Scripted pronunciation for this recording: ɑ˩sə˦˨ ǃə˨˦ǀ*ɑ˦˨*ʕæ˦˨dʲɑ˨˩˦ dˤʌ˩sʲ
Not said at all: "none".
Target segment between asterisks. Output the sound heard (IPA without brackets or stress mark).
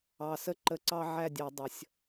ɑ˦